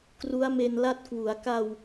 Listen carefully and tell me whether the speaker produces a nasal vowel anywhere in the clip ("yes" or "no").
no